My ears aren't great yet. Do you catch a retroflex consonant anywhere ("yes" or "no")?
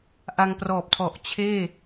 no